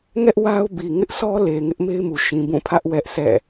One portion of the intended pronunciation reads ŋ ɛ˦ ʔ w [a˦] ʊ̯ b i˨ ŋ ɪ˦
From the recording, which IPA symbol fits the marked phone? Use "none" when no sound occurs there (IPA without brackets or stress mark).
a˦